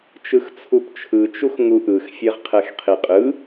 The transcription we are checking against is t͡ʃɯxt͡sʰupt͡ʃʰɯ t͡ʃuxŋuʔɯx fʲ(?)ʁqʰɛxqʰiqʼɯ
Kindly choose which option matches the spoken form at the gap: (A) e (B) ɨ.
A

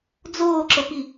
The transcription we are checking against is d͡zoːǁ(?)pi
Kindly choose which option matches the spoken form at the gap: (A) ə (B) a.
A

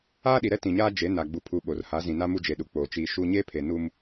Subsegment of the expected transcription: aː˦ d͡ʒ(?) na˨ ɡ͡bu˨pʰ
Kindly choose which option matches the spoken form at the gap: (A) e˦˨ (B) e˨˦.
B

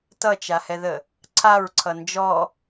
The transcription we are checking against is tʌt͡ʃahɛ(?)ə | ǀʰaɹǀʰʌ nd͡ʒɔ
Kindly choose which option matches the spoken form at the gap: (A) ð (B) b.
A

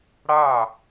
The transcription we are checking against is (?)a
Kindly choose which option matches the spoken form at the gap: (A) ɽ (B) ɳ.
A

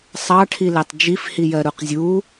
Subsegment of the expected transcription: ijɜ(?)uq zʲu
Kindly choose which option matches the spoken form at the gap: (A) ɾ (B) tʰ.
A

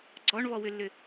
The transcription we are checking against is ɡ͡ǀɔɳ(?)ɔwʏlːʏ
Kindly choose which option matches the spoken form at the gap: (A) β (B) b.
A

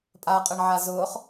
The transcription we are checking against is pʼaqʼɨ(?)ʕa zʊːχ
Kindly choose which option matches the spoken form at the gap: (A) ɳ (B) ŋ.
A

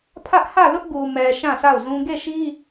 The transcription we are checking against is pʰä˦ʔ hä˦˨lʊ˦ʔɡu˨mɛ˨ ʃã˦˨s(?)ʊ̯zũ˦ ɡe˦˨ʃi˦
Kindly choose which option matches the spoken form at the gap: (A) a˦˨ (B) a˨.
A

